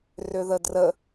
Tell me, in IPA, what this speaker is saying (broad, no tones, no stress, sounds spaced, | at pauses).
r ʏ ð ə d r ə